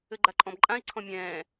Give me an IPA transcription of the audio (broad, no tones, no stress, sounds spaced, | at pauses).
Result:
ɘ ɡ͡ǃ a ǃʼ ɔ̃ b ǃʼ ã i̯ ǀʰ ɔ̃ mʲ ɛ̃ː